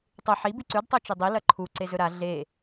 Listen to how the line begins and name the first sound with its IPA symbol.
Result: tˤ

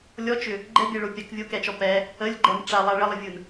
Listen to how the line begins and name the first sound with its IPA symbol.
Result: lʲ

